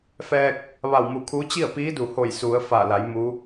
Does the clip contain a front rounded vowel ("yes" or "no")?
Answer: no